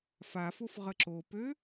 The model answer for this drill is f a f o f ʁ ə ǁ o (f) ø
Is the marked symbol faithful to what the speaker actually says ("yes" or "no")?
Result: no